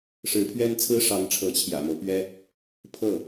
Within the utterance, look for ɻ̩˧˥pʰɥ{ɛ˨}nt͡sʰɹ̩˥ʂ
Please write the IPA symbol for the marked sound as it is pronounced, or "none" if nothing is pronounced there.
ɛ˥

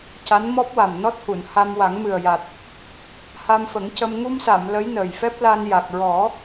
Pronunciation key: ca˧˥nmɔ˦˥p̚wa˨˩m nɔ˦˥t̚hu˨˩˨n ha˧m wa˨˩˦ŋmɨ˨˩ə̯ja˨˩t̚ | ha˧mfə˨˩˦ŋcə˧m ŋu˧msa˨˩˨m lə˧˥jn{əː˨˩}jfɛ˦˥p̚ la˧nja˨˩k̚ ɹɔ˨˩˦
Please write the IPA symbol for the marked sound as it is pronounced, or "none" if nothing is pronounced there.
əː˨˩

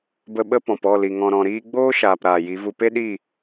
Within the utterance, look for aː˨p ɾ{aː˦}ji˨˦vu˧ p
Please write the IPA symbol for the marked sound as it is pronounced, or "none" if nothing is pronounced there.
aː˨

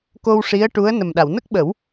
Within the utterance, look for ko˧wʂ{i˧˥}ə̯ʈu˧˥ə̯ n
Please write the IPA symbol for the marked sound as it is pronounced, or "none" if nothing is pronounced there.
i˧˥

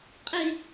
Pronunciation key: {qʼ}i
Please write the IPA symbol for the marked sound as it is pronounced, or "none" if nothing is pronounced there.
qʼ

